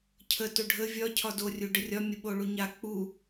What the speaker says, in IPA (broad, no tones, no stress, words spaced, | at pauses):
cʰə toɖʱə vʲɒ cʰɒdo rʲuɖərʲɒ mʲəɓoɭuɲa k͡pu